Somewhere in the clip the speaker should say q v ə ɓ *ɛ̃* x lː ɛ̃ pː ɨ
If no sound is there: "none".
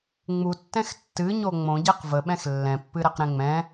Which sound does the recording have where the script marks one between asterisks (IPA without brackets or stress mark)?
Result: ɛ̃